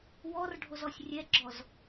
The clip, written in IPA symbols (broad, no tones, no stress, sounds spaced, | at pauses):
w ɔ r ɖʱ o z ɔ sʲ rʲ ɛ ɡ͡ǁ ɔ z